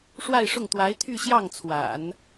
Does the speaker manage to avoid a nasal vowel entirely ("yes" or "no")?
yes